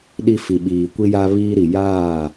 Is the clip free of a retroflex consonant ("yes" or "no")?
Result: yes